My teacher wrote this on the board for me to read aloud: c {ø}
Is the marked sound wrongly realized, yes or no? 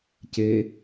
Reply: yes